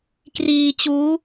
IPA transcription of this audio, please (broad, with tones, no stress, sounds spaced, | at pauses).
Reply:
k r iː˧ t͡ɕ uː˦˥